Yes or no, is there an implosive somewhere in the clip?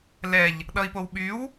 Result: yes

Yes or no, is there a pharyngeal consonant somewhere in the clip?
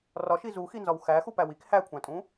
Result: no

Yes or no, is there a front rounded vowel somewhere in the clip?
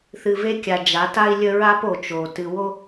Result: no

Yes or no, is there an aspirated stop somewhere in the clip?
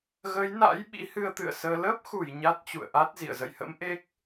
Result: no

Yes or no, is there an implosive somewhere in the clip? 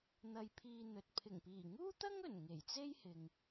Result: no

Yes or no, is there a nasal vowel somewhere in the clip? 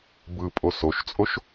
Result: no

